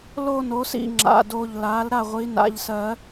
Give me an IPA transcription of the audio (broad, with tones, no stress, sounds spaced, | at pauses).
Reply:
l o˥˧ n o˩˥ s ḭ˥˩ ŋ͡ǁ a̰˩˧˩ d o˧˩ ʎ l a˩˥ l ɾ a˥˩ ʁʷ i˩˥ n a̰˩˧˩ ʎ s ɜ˨˩˦